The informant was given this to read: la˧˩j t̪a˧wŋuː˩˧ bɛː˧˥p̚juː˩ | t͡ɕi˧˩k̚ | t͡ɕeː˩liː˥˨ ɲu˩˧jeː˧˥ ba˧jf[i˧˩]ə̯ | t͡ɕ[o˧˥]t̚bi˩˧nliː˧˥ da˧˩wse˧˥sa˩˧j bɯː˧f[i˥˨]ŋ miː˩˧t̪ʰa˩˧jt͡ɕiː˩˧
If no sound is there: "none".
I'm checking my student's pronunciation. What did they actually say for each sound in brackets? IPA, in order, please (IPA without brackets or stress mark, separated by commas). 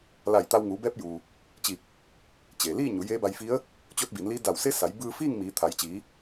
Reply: i˧˥, o˧˥, iː˥˨